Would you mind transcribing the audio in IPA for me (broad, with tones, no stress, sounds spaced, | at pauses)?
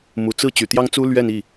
m u˨˩ t͡s ɹ̩˥˩ t͡ɕ y˨˩ t̪ j ɑ˥ ŋ t͡s u˥ l ɥ ɛ˥˧ n i˥˩